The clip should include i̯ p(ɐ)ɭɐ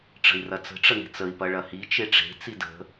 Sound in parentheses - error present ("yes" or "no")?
no